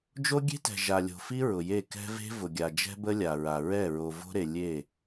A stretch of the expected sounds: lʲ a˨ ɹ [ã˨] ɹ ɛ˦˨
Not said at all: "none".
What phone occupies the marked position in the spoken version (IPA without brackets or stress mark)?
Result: a˨